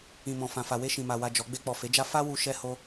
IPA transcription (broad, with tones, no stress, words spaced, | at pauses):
ĩ˨mɔ̃˨ fã˨fa˨ we˧ʃĩ˨ma˨wa˨ d͡ʒɔ˨˦ ɡ͡be˧k͡pɔ˨ fe˨˦d͡ʒa˦ fa˦wu˧ ʃɛ˦ho˦